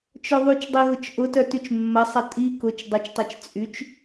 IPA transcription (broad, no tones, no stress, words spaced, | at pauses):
t͡ʃœðˤyt͡ʃdˤi ɣʊt͡ʃʔʊtœ tyt͡ʃmːɐsˤɐ tʼi kʊt͡ʃ dˤʊt͡ʃtˤɛt͡ʃ t͡sʼyt͡ʃ